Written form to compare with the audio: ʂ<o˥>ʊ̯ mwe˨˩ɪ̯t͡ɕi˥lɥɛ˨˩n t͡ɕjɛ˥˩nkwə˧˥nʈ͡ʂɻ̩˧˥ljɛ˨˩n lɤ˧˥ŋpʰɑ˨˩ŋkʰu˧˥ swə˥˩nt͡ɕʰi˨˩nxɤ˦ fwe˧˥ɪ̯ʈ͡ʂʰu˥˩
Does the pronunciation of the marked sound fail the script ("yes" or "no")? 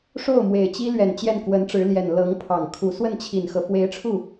yes